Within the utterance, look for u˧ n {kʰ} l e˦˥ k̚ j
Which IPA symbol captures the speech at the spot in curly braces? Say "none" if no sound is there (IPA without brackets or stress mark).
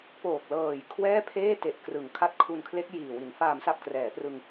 kʰ